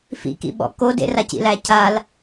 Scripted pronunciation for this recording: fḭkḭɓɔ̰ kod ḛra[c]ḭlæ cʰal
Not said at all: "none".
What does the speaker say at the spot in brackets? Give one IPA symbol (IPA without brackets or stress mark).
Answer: c